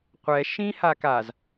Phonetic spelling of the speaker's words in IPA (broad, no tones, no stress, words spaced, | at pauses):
qʷɛ ʃĩ hakaz